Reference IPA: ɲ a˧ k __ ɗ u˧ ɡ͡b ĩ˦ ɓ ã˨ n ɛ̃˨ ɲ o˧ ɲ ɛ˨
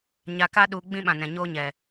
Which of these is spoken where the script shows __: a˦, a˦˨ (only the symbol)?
a˦